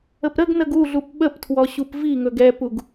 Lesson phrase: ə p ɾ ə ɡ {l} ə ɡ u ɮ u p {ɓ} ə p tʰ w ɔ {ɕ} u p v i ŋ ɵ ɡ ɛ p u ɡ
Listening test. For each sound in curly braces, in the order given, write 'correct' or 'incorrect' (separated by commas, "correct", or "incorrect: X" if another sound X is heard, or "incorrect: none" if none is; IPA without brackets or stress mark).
incorrect: n, correct, correct